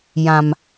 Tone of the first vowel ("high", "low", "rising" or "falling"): low